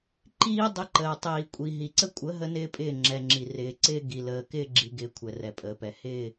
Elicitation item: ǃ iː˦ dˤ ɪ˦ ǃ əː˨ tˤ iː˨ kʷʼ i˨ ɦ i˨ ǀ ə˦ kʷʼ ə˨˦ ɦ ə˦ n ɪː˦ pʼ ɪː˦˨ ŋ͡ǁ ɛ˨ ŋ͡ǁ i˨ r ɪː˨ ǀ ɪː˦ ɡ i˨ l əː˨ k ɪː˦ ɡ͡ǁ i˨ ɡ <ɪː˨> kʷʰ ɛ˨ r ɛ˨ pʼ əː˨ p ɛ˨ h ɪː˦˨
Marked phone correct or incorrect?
correct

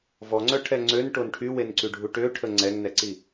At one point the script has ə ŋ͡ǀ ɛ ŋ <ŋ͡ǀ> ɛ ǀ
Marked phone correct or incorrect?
incorrect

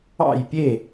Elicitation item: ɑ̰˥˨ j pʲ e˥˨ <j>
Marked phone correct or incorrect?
incorrect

